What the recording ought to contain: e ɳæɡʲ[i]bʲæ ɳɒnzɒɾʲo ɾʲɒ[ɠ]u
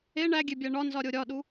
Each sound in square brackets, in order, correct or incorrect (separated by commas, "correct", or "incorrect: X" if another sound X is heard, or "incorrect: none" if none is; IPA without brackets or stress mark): incorrect: e, incorrect: ɗ